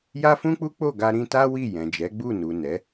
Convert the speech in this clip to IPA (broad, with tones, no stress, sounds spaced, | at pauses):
j a˦ f ũ˦ k͡p u˦ k͡p o˦˨ ɡ a˧ ɾ ĩ˧ t a˦ w i˦˨ j ɛ̃˨ d͡ʒ ɛ˨˦ ɡ͡b u˦˨ n u˨ n ɛ˨˦